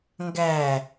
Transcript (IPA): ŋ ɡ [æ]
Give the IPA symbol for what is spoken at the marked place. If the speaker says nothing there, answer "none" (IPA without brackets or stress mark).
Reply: æ